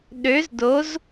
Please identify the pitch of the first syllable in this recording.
rising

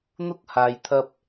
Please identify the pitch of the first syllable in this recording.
high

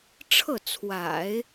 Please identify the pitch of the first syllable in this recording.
falling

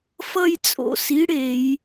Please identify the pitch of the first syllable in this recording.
falling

